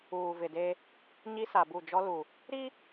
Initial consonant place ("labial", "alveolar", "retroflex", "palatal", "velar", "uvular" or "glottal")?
labial